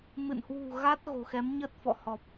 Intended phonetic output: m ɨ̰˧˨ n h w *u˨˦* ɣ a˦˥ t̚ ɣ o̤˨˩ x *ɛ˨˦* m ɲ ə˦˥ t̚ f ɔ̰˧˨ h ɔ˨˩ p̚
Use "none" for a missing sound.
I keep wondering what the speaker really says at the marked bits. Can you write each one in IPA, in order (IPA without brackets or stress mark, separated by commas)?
ṳ˨˩, ɛ˨˦